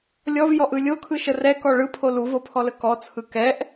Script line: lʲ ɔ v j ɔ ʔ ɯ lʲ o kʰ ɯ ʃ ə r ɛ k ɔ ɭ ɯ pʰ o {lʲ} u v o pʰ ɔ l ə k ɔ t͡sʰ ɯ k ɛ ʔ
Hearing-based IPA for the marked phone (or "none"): l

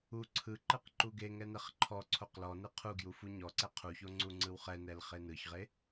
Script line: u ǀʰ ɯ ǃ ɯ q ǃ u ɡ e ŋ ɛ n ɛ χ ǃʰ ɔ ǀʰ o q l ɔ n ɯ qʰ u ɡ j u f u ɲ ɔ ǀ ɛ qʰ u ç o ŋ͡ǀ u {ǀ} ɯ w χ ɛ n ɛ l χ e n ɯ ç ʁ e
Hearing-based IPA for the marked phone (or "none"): ŋ͡ǀ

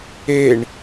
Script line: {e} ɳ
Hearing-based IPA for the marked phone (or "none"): e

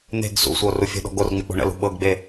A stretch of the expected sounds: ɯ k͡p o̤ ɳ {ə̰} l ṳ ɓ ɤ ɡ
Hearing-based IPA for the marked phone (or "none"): ə̰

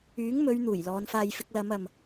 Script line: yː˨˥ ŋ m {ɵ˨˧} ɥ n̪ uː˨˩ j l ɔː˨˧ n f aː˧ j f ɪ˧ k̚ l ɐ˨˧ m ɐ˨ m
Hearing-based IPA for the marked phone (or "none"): ɵ˨˧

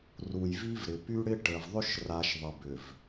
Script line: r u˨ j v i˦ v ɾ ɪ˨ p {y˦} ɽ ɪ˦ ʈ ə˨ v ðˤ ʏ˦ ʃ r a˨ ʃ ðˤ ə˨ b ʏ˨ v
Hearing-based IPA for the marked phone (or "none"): y˦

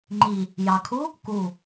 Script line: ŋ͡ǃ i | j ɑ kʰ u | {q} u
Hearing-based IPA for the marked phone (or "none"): k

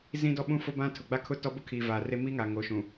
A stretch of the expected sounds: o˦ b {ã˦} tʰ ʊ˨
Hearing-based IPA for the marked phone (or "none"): ã˦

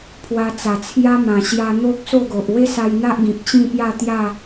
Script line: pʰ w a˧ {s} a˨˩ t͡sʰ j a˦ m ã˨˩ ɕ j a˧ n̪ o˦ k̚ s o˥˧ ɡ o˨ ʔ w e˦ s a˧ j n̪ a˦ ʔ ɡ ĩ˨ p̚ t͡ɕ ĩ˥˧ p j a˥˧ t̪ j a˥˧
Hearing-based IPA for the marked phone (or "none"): t͡s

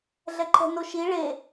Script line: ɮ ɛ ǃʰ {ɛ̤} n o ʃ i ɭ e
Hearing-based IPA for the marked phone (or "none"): ɛ̤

